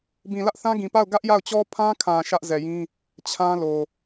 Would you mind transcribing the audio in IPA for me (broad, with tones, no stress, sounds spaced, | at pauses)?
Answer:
b ĩ˨ l ä˦ ʔ θ ã˦ ɡ ĩ˨ p a˦˨ ʊ̯ ɡ ä˦ ʔ j a˦˨ ʊ̯ t͡ɕ ɔ˦ pʰ ã˦ kʰ ã˨ ʃ ä˦ ʔ z ɛ˨ j ĩ˦ | t͡ɕʰ ã˦ l o˨